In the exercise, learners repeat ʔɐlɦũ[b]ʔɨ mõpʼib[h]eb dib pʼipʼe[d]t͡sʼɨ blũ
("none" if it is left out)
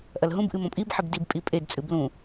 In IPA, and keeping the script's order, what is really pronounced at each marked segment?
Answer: b, ħ, d

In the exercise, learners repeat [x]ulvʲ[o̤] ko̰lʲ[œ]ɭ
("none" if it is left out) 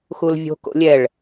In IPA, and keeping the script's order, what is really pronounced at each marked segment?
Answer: x, o̤, ɛ

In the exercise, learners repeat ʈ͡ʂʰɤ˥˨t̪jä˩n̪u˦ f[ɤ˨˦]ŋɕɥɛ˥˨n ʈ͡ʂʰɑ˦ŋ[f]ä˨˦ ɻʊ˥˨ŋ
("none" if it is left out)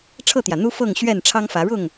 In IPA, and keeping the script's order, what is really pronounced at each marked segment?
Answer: ɤ˥˨, f

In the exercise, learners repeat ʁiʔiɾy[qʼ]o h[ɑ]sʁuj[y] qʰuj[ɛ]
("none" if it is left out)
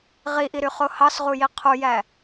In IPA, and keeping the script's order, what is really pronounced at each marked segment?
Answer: χ, ɑ, i, æ

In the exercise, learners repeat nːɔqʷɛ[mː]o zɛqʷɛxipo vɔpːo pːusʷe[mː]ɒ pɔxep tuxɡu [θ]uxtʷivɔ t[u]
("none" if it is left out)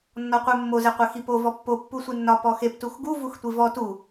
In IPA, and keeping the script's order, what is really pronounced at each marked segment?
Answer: mː, nː, v, u

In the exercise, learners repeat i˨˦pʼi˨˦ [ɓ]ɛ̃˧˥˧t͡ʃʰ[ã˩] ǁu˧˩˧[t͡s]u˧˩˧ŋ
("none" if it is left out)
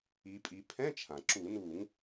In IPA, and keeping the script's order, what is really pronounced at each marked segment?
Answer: pʰ, ã˩, n

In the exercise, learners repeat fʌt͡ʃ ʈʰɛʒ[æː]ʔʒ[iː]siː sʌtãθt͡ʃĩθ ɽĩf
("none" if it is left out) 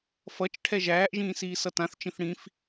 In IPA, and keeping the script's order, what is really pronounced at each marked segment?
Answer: æː, ĩː

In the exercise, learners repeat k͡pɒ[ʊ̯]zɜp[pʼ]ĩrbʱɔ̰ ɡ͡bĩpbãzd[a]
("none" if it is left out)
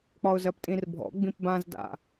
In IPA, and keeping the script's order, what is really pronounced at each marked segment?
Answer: ʊ̯, tʼ, a̰

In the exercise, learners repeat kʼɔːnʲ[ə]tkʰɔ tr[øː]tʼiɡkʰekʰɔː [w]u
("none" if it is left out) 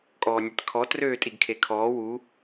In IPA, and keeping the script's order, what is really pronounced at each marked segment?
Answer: ɛ, øː, w

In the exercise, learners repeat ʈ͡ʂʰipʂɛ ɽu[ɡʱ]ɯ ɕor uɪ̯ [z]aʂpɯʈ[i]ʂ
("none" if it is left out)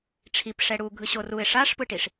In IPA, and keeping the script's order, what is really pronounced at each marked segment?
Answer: ɡʱ, ʂ, i

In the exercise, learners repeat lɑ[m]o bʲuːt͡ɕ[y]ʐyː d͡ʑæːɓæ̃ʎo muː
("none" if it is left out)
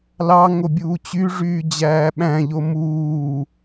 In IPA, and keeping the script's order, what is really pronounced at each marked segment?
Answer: ŋ, y

